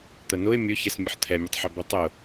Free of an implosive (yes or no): yes